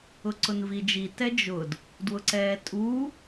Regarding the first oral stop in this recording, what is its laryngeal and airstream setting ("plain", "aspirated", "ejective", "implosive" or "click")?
click